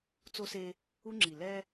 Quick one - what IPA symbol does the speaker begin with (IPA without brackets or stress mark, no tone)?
t͡s